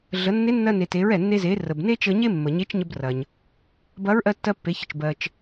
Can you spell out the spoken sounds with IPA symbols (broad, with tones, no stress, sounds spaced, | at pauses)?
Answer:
ɮ ə˩˧ nː e˧˥ nː ɜ˧ n e˩ t e˩˧ ɹ ɛ˩ nː e˧ z e˩˧ r ə˩ b n e˥ t͡ʃ ə˧ ɲ e˥ mː ə˩ ɲ e˧˥ t͡ʃ ɲ ə˧ b r ɐ˩ ɲ | b ɐ˧˥ ɹ ʔ ɜ˧ tː ɜ˧ pː e˩˧ ç ə˩ t͡ʃ b ɜ˩ t͡ʃ